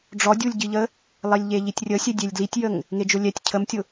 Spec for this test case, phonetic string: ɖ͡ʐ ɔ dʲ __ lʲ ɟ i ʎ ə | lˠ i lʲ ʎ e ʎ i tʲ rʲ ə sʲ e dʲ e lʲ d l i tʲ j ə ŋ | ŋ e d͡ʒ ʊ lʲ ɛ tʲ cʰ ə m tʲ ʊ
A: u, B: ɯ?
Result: A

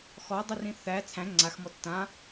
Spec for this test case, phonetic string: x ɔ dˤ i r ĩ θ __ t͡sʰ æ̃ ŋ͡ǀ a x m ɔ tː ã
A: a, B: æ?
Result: B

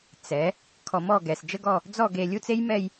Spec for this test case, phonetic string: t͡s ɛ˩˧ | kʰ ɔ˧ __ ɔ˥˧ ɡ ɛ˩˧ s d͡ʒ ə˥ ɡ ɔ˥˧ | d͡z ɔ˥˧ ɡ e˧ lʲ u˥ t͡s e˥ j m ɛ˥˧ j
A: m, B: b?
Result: A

